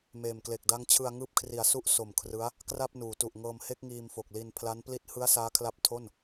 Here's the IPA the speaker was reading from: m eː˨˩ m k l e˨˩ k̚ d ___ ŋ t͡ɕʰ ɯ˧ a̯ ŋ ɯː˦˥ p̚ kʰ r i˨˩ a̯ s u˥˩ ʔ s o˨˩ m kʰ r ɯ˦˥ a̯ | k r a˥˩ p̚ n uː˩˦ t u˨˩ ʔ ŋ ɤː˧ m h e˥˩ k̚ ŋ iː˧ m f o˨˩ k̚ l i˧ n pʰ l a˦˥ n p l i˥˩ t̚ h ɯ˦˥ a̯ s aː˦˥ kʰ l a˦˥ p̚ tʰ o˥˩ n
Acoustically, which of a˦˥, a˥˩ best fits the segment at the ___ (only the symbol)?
a˦˥